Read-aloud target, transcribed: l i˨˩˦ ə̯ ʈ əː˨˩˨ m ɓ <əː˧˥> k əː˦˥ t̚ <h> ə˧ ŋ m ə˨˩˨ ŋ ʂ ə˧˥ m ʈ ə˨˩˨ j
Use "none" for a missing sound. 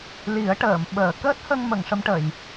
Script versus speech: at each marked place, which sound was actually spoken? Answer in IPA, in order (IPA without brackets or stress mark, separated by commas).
əː˨˩˨, h